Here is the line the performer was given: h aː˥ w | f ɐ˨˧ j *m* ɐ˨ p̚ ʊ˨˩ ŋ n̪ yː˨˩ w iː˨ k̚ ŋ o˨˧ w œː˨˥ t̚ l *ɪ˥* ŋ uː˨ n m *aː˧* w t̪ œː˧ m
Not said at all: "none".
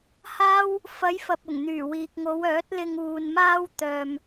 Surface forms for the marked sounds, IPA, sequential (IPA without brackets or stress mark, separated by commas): f, ɪ˧, aː˥